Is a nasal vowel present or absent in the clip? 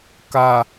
absent